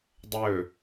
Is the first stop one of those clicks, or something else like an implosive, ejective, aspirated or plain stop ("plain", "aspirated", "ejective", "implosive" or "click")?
plain